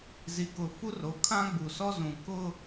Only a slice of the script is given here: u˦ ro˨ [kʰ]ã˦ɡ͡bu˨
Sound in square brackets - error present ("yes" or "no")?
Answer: no